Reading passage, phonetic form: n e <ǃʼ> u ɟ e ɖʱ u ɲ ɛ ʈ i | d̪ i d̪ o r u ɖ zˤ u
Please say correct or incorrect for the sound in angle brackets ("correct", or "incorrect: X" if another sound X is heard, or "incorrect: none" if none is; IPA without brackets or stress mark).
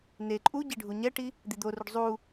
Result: correct